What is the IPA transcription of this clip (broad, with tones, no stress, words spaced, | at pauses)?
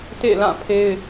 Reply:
tḛ˦˨lã˦˨ pʰe˦ɪ̯